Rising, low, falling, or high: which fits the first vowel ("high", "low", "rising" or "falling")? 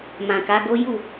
low